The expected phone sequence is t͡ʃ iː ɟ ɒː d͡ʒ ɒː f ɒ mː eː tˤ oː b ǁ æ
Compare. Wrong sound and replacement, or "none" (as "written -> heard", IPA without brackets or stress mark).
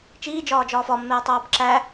ɟ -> d͡ʒ